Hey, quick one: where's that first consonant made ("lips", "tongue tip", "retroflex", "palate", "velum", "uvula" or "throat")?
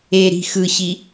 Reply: tongue tip